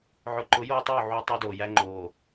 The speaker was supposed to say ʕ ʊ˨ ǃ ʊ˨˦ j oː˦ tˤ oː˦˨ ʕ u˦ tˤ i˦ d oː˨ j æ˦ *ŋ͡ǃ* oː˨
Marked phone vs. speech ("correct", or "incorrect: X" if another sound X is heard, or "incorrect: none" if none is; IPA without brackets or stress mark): correct